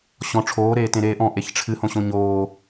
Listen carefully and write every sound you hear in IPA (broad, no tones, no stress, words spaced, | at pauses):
ɕɔ̃ ʈ͡ʂʰoː ɾeːtẽɾeːʔɔ̃ ʔeçʈ͡ʂʰɨ hõɕõɲoː